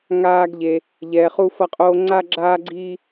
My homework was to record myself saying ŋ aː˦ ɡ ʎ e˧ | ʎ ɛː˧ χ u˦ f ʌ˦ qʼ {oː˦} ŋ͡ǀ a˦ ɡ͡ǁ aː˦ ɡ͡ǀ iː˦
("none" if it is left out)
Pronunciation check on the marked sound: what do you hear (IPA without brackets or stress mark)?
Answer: oː˦